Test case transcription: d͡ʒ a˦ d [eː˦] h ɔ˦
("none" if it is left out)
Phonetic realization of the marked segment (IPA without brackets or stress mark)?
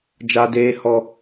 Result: eː˦